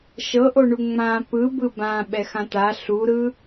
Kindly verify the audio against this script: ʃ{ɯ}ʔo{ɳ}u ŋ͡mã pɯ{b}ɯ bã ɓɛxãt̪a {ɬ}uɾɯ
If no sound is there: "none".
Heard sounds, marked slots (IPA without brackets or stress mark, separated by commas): ɤ, ɳ, b, ɬ